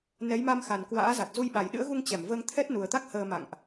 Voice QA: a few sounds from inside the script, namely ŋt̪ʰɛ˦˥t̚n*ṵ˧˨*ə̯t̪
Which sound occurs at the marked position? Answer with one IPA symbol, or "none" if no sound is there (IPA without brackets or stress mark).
u˨˩